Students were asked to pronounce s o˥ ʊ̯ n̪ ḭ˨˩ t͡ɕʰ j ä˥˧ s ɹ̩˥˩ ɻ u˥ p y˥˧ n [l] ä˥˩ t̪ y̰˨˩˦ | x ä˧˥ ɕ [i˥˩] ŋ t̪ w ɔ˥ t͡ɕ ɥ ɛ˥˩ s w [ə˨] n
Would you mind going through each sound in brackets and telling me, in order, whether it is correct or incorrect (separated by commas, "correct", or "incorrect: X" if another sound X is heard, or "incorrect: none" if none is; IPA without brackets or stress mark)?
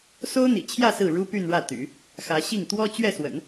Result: incorrect: ɻ, correct, incorrect: ə̰˨˩˦